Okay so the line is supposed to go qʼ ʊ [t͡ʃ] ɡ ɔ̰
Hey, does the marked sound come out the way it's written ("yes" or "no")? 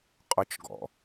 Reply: yes